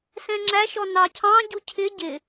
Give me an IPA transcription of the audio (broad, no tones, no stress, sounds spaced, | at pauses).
s ɛ̃ ŋ͡ǁ æ ʃ ɔ n ɑ cʰ ɑ̃ ɟ u cʰ ɪ ɟ ɪ